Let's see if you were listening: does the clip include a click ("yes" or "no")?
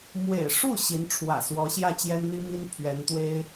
no